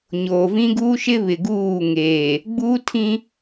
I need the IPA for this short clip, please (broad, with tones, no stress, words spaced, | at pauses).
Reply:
ɲoː˨vĩ˦ɡuː˦ʃɪ˦ βɪ˨ɡuː˦˨ŋeː˨ | ɡ͡bu˦tʰĩ˦